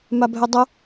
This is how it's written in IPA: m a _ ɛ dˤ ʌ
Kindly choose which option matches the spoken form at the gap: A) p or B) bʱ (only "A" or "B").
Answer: B